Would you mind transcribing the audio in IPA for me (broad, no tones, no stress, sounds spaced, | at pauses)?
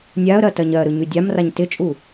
nʲ a ə̯ ɾ ɜ t ɜ ɲ ɜ ɾ ɯ ɲ y dʲ a m r a ɲ t ɪ t͡ʃʼ u